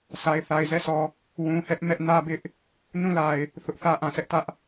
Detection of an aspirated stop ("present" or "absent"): absent